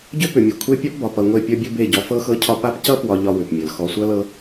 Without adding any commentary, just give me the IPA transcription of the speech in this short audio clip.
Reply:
ɟ ʏ˦ p ʏ˨ mʲ ʌ˨ kʷʰ e˦ pʲ ɒ˦ p b ɒ˨ p ʌ˨ ŋʷ e˦˨ pʲ ʌ˦ bʲ ɤ˦ b e˦˨ ɟ ɔ˨˦ f ɤ˦ x ɤ˦ cʰ ɒ˦ p a˦ p c ʌ˦ p w ɒ˨ ʎ ɒ˦ w ʏ˨ p mʲ ɤ˨ l x ɔ˨ sʷ ʌ˦ l ɤ˦

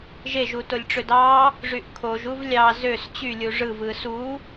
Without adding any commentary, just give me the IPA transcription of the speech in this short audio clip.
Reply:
ʒ e ʒ u t o lʲ ʈ͡ʂ ø d ɑ | ʐ y ʔ kʰ o ʒ u v lʲ ɑ z ø s t͡ɕ y lʲ u ʐ ɯ v ɯ s u

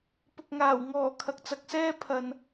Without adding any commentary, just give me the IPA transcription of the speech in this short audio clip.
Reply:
p ʊ˨ k̚ ŋ aː˨˩ w ŋ ɔː˨˩ kʰ ɐ˨ k̚ t͡s ɐ˨ k̚ s ɛː˥ pʰ ɐ˨ n

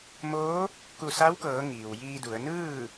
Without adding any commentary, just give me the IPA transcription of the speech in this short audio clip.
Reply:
m oː˧˥ | k u˧˩ s a˧˥ w k ɤː˩˧ ŋ iː˩ w j iː˧ d u˩˧ ə̯ n ɯː˥˨

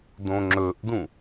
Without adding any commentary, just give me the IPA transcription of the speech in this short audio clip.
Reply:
d õ ŋ͡ǁ ɵ ʔ d ũ

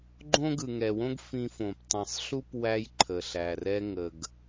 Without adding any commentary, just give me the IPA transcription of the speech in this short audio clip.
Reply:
ɡ͡ǃ õ˥ ɡ ɯ˩ ŋ ɛ˩ w õ˥ ɡ f ĩ˧ f õ˩ p tˤ ĩ˩ sˤ ɬ u˥ p w æ˧ j ǃʰ ə˩ ɬ æ˩ r ɛ˧ ŋ ə˩ ɡ

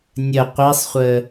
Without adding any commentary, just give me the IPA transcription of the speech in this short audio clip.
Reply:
nʲ ə qʷ i sˤ χʷ ə

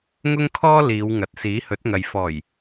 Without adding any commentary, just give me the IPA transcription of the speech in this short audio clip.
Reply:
ŋ ʊ˥ ŋ kʰ ɔː˥ l iː˨˧ w ŋ ɐ˨ t̚ s iː˨˥ h ɵ˨˥ t̚ ŋ ɐ˨ j f ɔː˨˩ j

